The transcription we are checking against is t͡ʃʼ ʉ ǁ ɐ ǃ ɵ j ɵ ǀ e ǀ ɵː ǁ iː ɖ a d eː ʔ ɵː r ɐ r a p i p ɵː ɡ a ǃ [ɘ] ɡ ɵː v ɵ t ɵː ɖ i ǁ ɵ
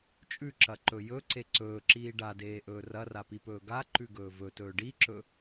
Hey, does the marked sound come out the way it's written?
no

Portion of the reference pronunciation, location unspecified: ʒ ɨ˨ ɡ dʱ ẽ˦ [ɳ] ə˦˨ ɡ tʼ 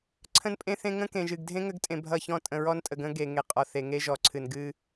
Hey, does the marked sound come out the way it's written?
no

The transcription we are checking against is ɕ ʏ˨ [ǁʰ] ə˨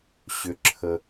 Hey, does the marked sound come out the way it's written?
yes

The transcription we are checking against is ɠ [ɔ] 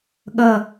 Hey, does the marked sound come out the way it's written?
no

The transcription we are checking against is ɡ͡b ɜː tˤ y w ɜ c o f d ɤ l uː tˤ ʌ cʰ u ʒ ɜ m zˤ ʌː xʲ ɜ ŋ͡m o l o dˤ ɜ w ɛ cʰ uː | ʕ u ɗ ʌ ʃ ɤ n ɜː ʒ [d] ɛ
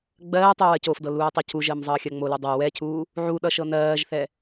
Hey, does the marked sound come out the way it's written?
no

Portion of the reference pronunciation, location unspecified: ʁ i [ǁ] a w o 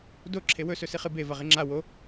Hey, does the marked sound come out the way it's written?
no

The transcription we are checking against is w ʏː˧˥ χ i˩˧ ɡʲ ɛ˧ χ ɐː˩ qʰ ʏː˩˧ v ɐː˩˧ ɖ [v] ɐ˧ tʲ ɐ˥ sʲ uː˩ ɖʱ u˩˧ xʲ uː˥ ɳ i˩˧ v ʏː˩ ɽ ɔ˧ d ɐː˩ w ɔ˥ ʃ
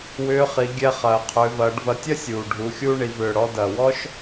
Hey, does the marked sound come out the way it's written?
yes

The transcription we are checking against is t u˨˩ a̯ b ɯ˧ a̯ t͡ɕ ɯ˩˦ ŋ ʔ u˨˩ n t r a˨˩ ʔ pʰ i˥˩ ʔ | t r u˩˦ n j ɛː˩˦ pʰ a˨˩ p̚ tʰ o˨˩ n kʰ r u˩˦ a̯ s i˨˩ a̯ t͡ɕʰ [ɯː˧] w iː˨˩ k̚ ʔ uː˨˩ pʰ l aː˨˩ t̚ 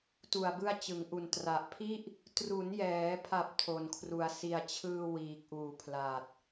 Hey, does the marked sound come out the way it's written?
yes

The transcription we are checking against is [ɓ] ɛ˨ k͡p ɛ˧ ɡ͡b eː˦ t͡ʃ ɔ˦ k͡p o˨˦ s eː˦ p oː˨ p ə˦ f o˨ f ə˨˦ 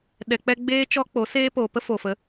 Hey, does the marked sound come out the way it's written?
no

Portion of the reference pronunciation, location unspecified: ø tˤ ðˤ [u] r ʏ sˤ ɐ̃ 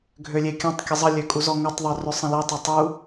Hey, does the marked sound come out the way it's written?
no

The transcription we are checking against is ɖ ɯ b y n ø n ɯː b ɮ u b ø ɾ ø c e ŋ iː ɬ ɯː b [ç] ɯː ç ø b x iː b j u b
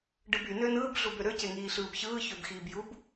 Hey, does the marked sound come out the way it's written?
yes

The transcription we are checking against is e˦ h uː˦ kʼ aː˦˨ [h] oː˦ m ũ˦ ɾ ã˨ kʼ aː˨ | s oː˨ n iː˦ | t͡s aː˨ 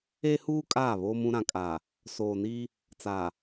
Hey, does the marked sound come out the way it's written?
no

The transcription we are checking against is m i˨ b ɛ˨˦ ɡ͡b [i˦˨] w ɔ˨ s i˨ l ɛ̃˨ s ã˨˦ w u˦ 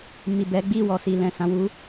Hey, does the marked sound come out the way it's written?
yes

